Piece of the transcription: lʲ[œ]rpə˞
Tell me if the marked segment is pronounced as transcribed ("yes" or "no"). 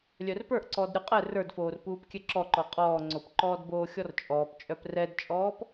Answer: yes